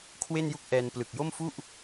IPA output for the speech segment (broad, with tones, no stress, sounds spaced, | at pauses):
kʰ w e˥˩ n j u˥˩ k̚ ʔ ɛː˧ n p l ɯ˨˩ k̚ j o˥˩ m f u˥˩ ʔ